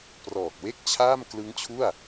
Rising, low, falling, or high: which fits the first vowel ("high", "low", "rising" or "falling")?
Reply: low